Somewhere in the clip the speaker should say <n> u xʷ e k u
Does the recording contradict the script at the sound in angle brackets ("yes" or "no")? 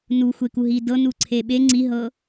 no